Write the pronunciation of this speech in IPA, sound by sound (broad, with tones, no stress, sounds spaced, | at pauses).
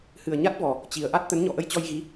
h ɨ˨˩ ə̯ ɲ a˦˥ t̚ v ɔ˨˩ | t͡ɕ i˨˩ ə̯ ʔ a˦˥ t̚ t̪ ə˨˦ n ɲ ɔ̰˧˨ ʔ ə˧ j t͡ɕ ɔ˧ j ɣ i˨˦